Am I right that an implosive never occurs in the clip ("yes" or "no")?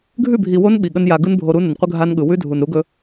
no